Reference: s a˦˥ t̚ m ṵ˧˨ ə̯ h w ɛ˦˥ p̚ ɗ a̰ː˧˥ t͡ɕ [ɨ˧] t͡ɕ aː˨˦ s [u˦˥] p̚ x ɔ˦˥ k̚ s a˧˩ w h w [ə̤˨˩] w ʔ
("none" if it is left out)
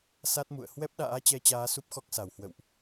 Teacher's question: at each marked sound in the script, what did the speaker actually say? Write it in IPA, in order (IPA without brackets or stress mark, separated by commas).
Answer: ɛ˧, u˦˥, ə̰˧˨